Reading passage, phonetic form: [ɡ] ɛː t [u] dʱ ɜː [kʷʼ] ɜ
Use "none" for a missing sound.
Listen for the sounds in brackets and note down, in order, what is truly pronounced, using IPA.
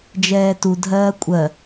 d͡ʒ, u, kʷʼ

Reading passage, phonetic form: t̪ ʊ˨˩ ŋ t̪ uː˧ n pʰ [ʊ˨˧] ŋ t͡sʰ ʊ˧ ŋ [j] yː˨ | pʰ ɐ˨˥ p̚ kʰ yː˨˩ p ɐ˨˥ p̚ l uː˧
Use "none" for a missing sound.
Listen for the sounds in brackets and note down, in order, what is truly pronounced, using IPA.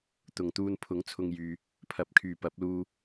ʊ˨˥, j

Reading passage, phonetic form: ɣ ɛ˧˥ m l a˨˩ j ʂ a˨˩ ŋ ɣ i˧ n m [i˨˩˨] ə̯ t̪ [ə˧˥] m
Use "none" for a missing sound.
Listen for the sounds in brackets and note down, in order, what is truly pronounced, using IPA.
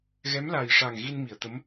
i˨˩˨, ə˧˥

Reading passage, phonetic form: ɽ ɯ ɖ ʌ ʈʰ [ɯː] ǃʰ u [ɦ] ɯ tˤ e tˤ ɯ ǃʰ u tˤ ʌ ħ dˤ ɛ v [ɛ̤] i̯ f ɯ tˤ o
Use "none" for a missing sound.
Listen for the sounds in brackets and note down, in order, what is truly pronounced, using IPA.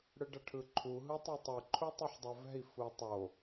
ɯ, ɦ, ɛ̤

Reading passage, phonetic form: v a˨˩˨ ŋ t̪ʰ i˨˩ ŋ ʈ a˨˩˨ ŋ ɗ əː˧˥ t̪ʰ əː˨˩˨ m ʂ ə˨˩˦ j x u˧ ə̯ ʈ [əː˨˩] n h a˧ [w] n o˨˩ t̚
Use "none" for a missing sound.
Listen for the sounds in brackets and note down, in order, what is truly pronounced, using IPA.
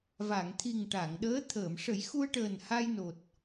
əː˨˩, j

